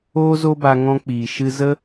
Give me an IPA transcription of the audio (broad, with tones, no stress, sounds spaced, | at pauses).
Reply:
oː˦ z o˦ b a˧ ŋ ɔ̃˧ k͡p iː˨ ʃ ɨ˧ z ə˦